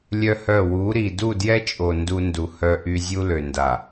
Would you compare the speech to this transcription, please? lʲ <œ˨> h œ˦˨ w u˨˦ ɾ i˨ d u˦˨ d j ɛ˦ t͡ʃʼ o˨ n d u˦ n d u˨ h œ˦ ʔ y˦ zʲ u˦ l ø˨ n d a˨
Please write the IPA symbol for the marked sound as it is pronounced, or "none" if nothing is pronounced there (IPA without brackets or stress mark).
œ˦